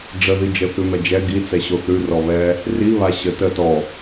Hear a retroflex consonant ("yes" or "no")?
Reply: yes